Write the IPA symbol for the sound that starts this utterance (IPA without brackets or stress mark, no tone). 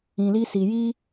ĩ